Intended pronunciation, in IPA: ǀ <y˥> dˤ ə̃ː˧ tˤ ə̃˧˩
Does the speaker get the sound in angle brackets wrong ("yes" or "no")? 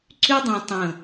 no